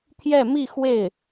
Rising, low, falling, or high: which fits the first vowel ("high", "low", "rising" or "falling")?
falling